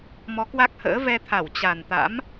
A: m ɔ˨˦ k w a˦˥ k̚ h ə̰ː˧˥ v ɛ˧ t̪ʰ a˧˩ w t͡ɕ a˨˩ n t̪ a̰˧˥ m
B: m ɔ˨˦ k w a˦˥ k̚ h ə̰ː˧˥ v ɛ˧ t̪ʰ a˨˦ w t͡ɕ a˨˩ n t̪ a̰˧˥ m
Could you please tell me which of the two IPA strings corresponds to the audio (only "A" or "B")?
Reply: A